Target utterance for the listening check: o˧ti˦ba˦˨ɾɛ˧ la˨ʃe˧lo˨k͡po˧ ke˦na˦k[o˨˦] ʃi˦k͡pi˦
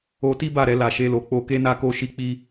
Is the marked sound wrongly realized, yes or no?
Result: yes